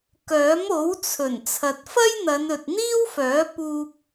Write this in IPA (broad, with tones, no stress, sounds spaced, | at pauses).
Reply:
k œː˨˥ m o˨˥ w t͡sʰ ɵ˨˩ n t͡sʰ ɐ˨ t̚ f ɐ˥ j n̪ ɐ˨˧ n ɵ˨ t̚ n̪ iː˥ w f œː˨˥ p uː˧ p̚